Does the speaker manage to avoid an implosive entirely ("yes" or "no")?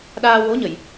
no